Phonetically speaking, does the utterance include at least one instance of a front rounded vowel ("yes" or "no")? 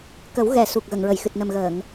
no